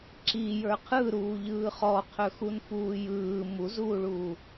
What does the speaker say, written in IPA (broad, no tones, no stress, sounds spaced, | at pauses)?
ǁ i j ə˞ qʰ ɯ ɾ uː ʎ ɯː χ ɔ qʰ ɵ x u n f uː j ɯː m u z uː ɭ uː